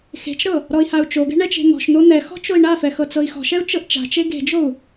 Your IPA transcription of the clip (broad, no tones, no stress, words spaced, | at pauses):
xe̤t͡ʃɾɤ | ɾɔi̯hau̯t͡ʃoɡɛ̤ ɳɛt͡ʃe̤n̪ɔ̤ʃn̪o n̪ɛxɔ̤ t͡ʃoi̯ɳafɛ xɤt͡sɤi̯xɔ̤ʃɛu̯ t͡ʃɤʔt͡ʃa̤t͡ʃe ɡe̤d͡ʒou̯